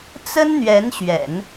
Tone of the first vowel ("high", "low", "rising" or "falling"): high